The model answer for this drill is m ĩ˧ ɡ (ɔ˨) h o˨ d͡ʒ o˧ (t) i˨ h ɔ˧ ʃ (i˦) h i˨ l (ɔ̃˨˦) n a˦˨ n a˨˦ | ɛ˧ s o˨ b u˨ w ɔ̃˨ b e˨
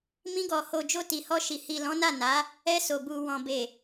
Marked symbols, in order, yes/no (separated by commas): yes, yes, no, yes